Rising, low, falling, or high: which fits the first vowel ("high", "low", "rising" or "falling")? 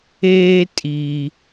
high